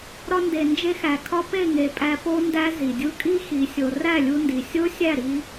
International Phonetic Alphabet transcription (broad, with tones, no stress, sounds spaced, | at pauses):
ɾ ɒ˧ n d e˨ n d͡ʒ e˧ x æ˨ kʰ ɒ˧ p e˦˨ ŋ e˨ pʼ æ˧ p o˦ n d æ˦ z i˨ dʲ u˧ kʼ i˦ x i˨ sʲ o˨ r æ˦˨ lʲ u˧ n d i˨ sʲ o˦ sʲ æ˦˨ ɾ i˧